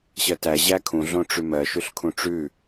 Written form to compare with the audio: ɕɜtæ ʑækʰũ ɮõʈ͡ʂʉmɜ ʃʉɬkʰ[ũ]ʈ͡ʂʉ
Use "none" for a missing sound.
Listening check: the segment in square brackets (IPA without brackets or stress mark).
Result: ũ